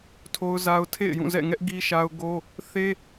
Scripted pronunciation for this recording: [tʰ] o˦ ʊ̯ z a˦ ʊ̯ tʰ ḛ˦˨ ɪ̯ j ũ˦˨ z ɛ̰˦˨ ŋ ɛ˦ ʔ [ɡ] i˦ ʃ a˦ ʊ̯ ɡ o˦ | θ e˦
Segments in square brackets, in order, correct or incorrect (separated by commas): correct, correct